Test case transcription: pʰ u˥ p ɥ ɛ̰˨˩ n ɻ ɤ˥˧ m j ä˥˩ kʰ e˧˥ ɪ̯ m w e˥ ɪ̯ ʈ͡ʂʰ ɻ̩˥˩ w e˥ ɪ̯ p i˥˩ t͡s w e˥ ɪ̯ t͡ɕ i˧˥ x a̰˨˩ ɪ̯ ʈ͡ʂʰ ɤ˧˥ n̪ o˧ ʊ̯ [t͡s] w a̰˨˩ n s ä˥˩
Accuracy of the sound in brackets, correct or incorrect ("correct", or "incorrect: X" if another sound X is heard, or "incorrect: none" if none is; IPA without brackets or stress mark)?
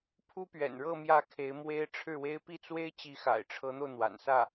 incorrect: n̪